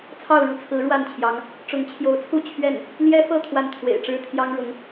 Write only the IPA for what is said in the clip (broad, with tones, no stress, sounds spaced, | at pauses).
t͡sʰ ɑ˥˧ ʊ̯ ɻ u˥˩ t͡sʰ ɹ̩˧˥ ɻ w a˥˩ n t͡ɕʰ j ɑ˧˥ ŋ | ʈ͡ʂ ʊ˧˥ ŋ t͡ɕʰ j o˧˥ ʊ̯ t͡sʰ u˥˧ t͡ɕʰ ɥ ɛ˥˩ n | l j ɛ˥ f ɤ˥˧ t̪ʰ w a˥˩ n t̪ʰ w ḛ˨˩ ɪ̯ ʈ͡ʂ ɻ̩˥ t̪ʰ j ɑ˥ ŋ ɻ ʊ˧˥ ŋ